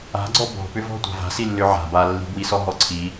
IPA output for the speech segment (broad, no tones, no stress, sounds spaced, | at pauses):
a̤ ɡ͡ǀ ɔ b ɔ̤ p ʏ v ɔ̤ tʷ a̤ v a̤ s i lː ʏ ʕ a̤ b a lː i̤ b w i s ɔ ɦ ɔ ǀʰ i